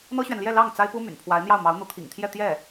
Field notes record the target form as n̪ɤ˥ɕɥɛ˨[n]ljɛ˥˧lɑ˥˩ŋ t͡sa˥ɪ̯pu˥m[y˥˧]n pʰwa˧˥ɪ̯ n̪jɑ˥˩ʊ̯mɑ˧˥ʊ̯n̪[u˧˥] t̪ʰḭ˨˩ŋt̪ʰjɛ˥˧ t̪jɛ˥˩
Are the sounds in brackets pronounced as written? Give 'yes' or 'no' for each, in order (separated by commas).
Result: yes, no, yes